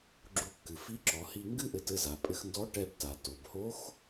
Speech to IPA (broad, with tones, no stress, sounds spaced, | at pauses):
ɡ͡ǁ u˧ kː ɨ˩ f i˧˥ ǁ ɔ˩˧ h i˧ ŋ ɡ ɨ˥ ʔ ɘ˧ t ɘ˧ z a˩ pʼ ɘ˧ x n d ɔ˧˥ ʈ ɛ˧ b t a˩ t o˩ b h o˧˥ x